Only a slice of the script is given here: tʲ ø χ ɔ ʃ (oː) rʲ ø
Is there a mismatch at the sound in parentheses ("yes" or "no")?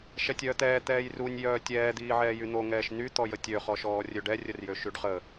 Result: yes